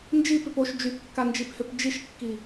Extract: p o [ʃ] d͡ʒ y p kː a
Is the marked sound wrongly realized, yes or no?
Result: no